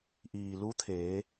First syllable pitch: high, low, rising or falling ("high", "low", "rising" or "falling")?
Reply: low